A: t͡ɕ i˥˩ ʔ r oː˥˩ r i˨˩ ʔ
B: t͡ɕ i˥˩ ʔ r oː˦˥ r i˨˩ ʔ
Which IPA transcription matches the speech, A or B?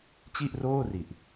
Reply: A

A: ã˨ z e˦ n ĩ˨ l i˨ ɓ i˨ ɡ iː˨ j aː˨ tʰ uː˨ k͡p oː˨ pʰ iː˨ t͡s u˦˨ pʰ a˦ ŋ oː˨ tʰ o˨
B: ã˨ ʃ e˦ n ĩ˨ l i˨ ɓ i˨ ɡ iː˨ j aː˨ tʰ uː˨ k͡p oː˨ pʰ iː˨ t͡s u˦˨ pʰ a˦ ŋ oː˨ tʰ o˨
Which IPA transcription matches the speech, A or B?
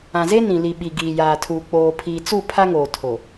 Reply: A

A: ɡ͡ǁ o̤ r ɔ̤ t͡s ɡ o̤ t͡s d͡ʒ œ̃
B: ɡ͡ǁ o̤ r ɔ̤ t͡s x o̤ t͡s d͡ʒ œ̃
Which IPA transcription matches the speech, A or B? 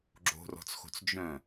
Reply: B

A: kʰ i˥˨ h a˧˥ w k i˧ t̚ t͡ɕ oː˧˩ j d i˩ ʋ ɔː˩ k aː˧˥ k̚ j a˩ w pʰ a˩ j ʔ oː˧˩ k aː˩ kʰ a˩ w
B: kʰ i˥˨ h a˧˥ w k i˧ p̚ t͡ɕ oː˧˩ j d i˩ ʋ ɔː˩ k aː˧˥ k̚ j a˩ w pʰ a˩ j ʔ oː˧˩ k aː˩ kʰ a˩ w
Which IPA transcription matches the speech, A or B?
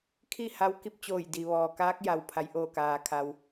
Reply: B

